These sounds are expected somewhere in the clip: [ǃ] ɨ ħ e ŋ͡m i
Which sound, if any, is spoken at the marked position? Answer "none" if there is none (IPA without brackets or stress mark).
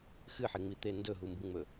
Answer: x